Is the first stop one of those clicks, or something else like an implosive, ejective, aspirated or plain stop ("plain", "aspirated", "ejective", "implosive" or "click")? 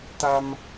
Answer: plain